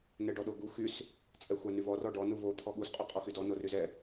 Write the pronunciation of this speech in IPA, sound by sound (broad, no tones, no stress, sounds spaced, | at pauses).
n ɛ ɖ ɔ ɗ o ɡ u x y s | t͡sʼ ɛ xʷ a n y v ɔ r ɔ ɖ ɔ n u v o t̪ʰ ɔ ɠ u s qʼ y qʼ ɔ x y d ɔ n o r y z ɛ